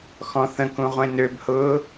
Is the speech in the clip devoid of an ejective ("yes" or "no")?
yes